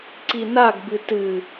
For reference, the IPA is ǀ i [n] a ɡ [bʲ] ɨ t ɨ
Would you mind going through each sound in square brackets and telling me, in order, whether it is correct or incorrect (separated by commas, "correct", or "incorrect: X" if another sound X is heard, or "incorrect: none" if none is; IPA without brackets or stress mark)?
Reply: correct, incorrect: b